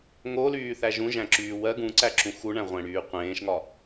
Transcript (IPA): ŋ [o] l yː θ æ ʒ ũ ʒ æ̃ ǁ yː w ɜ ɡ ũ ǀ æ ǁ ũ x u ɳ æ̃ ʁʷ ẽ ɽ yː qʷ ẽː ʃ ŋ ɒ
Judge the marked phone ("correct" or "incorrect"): correct